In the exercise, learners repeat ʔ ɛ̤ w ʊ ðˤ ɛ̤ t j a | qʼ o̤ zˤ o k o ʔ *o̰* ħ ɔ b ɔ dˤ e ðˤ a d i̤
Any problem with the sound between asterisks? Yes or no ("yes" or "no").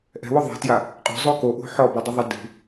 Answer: yes